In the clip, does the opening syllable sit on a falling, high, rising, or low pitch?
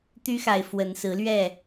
high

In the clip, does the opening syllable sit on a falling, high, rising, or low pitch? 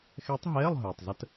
rising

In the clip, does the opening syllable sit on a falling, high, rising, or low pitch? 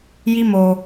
high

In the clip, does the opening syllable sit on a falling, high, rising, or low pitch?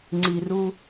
low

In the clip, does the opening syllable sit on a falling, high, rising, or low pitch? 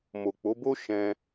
low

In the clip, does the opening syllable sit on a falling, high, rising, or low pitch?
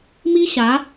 high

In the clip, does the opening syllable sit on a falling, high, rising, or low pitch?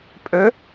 rising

